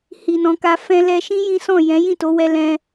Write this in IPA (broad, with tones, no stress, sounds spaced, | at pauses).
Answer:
h i˨ n ɔ̃˨˦ k a˧ f ɛ̃˧ l ɛ˧ ʃ ĩ˦ j ĩ˦ s ɔ̃˦˨ j ɛ̃˨˦ j ĩ˦˨ t o˨˦ w ɛ˧ l ɛ̃˧